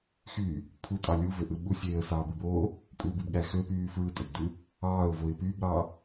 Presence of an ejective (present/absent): present